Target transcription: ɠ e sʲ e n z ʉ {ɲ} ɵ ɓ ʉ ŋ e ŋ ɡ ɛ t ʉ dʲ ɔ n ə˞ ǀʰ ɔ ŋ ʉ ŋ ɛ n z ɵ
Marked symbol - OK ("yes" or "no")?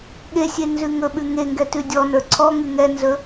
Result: no